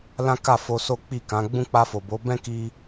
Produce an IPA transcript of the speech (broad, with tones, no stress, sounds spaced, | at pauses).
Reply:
l ã˦ k a˦˨ f o˧ s o˦ k͡p i˦˨ k ã˨˦ ɡ͡b ũ˦ k͡p a˧ f o˨ b o˨˦ b ɛ̃˦ k i˧